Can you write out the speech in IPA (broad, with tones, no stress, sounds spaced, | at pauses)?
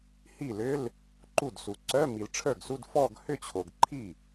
h i˥˩ l ʏ˧˥˧ l | ǃ u˥˩ d s u˨ ǀ œ˧˥˧ m i˨ l ʈ͡ʂʰ ə˞˥˩ ɡ s u˧˥˧ d f ɔ˥˧ ɡ h ʏ˥˧ t͡ɕʰ o˨ ɡ ǃʰ i˥˩